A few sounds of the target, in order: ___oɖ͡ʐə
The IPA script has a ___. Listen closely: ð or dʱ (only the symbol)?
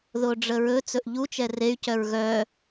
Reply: ð